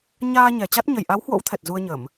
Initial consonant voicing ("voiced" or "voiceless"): voiced